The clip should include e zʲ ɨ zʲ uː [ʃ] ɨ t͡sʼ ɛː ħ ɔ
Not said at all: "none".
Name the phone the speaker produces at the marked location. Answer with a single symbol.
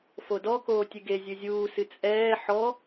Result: s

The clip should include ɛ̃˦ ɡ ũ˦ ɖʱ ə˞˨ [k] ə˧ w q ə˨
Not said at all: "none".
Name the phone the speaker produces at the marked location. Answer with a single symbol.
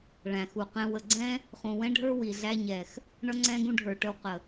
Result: ʈ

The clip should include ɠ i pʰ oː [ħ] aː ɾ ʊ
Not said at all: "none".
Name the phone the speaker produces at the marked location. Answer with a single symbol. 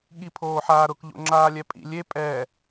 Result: ħ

